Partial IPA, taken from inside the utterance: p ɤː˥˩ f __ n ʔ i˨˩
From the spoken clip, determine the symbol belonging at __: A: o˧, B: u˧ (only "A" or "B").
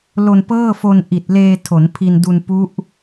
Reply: A